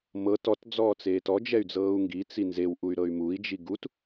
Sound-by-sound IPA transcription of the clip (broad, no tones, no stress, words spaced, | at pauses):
mɤt ɔt d͡zɔːt͡seːtɔ d͡ʒɛy̯d͡zɤːu̯ŋɡi t͡sinzew ʔuy̯ɾɤy̯mui̯ d͡ʒiɡut